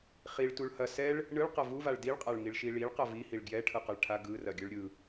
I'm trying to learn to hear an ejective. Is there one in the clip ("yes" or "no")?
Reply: yes